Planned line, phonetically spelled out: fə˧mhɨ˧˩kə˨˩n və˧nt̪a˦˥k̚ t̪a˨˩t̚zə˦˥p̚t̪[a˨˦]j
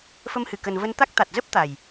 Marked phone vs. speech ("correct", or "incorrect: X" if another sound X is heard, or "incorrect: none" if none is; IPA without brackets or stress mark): incorrect: a˨˩